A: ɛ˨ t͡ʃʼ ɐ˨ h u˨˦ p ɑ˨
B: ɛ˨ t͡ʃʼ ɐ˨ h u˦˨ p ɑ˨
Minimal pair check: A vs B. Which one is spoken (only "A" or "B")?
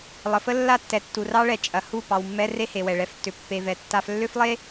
B